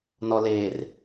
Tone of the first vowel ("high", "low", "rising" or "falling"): low